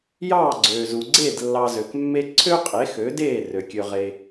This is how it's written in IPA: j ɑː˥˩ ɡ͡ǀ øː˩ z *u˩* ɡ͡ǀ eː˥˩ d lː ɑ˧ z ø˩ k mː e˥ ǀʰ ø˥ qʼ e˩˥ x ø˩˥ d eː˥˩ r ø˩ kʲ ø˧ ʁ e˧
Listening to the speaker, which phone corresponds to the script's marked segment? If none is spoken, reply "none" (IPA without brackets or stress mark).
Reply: u˩